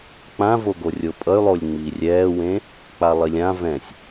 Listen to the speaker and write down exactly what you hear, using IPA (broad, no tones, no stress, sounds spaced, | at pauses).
k͡p ã v o ɡ o rʲ o pʼ ʌ y̯ lˠ o lʲ ŋ͡m iː rʲ ɛː w ẽ | k͡p a lˠ i lʲ ã v ɛ̃ sʲ